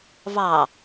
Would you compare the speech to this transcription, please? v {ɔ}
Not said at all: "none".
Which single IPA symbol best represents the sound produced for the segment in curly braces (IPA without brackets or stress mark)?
ɑ